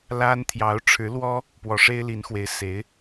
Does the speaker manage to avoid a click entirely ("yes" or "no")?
yes